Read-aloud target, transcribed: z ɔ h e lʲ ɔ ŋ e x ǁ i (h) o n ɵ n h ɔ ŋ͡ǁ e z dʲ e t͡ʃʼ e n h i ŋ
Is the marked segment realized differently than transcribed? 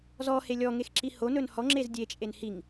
no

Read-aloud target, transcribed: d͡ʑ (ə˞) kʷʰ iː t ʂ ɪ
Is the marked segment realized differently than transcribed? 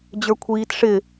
no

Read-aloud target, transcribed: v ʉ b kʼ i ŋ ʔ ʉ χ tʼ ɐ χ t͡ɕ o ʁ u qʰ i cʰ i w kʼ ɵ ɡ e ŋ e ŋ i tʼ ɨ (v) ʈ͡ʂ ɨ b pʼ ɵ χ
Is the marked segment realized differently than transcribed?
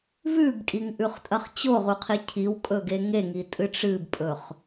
yes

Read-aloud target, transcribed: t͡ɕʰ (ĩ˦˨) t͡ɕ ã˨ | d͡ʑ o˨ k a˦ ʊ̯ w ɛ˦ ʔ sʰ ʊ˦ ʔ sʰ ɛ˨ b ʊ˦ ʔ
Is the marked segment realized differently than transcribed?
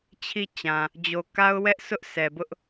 yes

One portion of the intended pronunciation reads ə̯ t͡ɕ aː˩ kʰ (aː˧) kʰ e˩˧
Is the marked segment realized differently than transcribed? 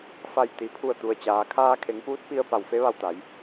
no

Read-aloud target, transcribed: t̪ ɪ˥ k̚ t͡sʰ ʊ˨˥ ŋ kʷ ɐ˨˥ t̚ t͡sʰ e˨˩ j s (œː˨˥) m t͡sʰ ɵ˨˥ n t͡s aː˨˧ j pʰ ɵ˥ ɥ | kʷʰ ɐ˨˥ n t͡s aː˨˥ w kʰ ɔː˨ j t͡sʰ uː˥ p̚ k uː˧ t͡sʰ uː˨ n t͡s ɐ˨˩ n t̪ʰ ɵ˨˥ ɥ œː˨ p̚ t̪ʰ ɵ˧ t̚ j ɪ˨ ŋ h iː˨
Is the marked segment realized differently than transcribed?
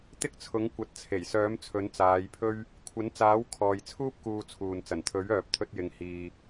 no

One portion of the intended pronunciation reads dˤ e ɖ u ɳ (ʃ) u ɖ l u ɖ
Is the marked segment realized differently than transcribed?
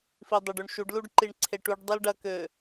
no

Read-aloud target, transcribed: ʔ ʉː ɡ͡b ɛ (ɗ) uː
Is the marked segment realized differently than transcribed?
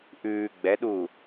no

